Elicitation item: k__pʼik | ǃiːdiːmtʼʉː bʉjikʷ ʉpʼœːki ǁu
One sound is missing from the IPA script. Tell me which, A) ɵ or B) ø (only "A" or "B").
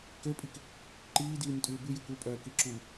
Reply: B